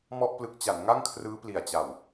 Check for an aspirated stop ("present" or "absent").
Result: present